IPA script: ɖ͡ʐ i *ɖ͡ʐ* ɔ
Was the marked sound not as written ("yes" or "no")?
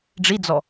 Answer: yes